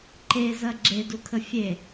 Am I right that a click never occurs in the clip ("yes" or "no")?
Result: no